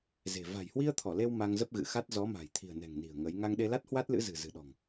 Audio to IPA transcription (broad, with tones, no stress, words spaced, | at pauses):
ze̤˨˩ va̤˨˩jhwi˧ə̯ t̪ʰɔ˧˩le˧w ma˧ŋzə˦˥p̚ɣɨ̰˧˨xa˦˥t̚ zɔ˨˦ma̤˨˩j t̪ʰi̤˨˩ə̯nɛ̤˨˩ŋni̤˨˩ə̯ ŋə˨˦j ŋa˧ŋɗe˧la˦˥t̚ hwa˦˥t̚lɨ̰˧˥zɨ̤˨˩ zɨ̤˨˩ɗɔ̤˨˩ŋ